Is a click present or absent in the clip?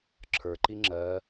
present